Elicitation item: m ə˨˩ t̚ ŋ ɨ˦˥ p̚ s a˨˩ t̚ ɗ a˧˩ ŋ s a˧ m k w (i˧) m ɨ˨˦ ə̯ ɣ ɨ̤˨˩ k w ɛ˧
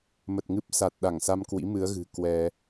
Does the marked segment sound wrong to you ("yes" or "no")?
yes